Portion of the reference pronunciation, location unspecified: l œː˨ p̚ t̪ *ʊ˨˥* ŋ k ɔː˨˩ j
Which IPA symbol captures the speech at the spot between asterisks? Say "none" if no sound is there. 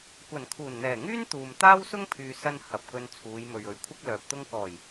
ʊ˥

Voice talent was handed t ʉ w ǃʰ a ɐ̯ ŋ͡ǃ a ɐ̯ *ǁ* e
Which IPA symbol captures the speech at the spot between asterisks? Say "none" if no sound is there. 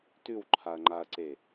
ǀ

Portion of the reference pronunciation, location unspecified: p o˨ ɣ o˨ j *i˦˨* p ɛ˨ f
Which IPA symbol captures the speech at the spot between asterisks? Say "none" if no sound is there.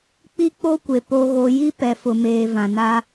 i˦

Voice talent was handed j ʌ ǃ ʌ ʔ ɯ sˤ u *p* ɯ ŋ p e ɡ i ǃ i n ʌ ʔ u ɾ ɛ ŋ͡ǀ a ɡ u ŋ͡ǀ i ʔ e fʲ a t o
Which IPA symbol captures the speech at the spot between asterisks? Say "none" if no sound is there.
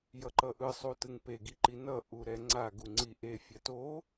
t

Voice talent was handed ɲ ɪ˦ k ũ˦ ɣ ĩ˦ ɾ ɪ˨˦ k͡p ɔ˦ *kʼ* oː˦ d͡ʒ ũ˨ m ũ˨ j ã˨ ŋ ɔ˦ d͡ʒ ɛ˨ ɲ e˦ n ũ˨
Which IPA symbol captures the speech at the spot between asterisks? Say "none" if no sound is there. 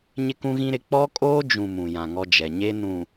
kʼ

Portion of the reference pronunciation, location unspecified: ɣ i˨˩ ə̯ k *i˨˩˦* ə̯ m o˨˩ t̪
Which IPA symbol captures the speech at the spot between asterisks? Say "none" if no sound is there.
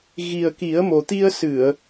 i˨˩˦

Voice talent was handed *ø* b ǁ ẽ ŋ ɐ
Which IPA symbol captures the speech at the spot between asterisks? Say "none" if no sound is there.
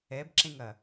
ɛ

